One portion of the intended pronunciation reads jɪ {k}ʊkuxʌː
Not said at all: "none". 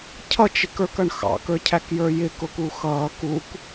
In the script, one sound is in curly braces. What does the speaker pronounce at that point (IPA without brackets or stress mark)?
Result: k